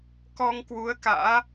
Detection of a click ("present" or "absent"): absent